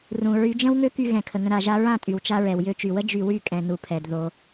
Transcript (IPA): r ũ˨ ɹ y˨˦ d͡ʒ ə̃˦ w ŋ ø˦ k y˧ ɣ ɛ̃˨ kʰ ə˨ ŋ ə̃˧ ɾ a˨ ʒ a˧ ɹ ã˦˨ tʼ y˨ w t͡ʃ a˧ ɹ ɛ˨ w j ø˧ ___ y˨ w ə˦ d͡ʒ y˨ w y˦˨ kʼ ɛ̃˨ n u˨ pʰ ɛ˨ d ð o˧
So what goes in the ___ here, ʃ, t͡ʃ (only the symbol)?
t͡ʃ